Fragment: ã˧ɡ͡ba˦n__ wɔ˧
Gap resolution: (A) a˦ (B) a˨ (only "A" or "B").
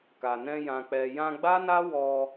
A